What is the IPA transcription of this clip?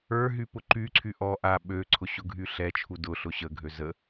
ə˞ ɦ y p ʊ ǃ y ǀʰ y ʔ ɔ ʔ a ɓ ø ǀʰ ʊ ɕ ʊ ɡʱ y ɬ ɛ t͡ʃʰ u d ʊ ɬ ʊ ɕ ə ɡʱ ø z ə

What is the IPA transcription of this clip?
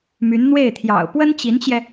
m y˧˥ n n̪ w e˥˩ ɪ̯ t̪ʰ j ɑ̰˨˩ ʊ̯ p w ə˥ n t͡ɕ i˧˥ n t͡ɕ j ɛ˧

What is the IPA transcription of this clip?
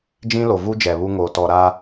d͡ʒ ĩ˦ l o˨ v u˦ d͡ʒ ɛ˨ β u˦ ŋ oː˨ t ɔ˨ ɾ a˦

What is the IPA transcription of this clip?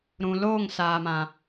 ɾ ũ˨ l oː˦˨ ŋ s aː˨ m ã˨

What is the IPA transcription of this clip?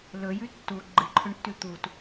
l ɵ j ʉ tː u ɡ͡ǃ ɨ ǃʰ ɵ ɳ tː ʉ t̪ u t

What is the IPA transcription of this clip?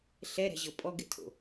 ɬ ɛ ɾ ɛ̤ ʑ ɤ pʼ ɔ ɡ ɛ̰ tʰ o̰

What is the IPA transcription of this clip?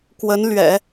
k w ə˧˥ n l ɥ ɛ̰˨˩˦

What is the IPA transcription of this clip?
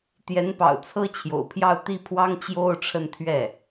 t̪ j ɛ˧˥ n p ɑ̰˨˩ ʊ̯ t͡sʰ ɤ˥ t͡ɕʰ j o̰˨˩ ʊ̯ pʰ j ɑ˥˧ ʊ̯ t̪ i˥˩ pʰ w ɑ˥ ŋ t͡ɕ j o˥˧ ʊ̯ ʈ͡ʂʰ ə˥˧ n t̪ʰ ɥ ɛ˥˩

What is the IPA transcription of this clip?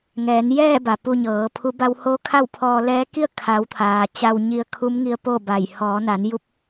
ŋ ɛː˩˧ n j ɛː˥˨ b a˩ p u˧ ɲ ɤː˩˧ pʰ u˧˥ b a˧ w h o˧˥ kʰ a˥˨ w pʰ ɔː˧ l ɛː˧˥ k i˥˨ ə̯ kʰ a˩˧ w t̪ʰ aː˩ t͡ɕ a˧ w ɲ i˧ ə̯ kʰ u˧˥ m ŋ i˧ ə̯ p o˥˨ b a˧˩ j h ɔː˩˧ n a˩˧ n j u˧˥ p̚

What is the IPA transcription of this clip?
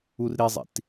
u r ɾ i zˤ ḭ t

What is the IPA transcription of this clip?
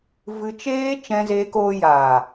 v ɨ˧ t͡ʃ eː˦ t͡ʃ ɛ̃˧ z eː˧ k oː˧ j aː˨

